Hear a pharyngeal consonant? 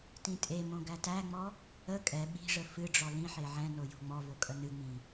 yes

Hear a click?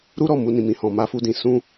no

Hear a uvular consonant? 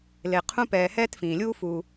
yes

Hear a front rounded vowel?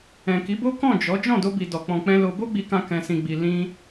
no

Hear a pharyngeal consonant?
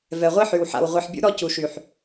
yes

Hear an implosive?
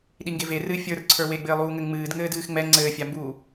yes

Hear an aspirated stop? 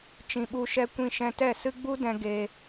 no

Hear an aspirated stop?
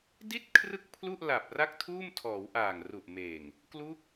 yes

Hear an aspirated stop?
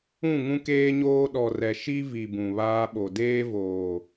no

